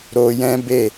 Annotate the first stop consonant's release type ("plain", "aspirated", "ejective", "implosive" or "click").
plain